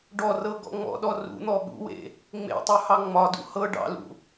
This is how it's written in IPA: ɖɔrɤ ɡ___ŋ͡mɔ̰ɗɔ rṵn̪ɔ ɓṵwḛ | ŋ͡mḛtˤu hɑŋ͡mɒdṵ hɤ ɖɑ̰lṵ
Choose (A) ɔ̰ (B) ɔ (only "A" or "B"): A